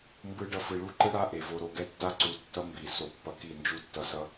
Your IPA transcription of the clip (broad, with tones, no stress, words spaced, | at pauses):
mbɯ˦ɖʌ˦ fɯ˨ɭu˦ǃɯ˦ɽa˦ ʔe˨vo˦ ɾo˨ɡɛ˦tːa˦ ǀu˨tːʌ˦ mbi˨ so˨pːʌ˨ ki˦˨nd͡ʒu˦˨tːʌ˨ sʌ˦